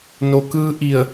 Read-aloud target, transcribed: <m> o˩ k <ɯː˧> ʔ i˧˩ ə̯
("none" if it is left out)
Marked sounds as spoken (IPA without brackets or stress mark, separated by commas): n, ɯː˧